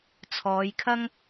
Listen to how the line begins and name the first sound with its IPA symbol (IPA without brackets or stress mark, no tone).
t͡sʰ